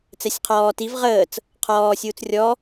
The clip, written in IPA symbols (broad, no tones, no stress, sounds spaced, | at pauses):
t͡s ɛ sʲ qʰ ɔː t i v ʁ əː t͡s | qʰ ɔː sʲ uː t͡s rʲ ɔ